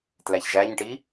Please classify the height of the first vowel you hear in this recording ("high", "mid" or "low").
low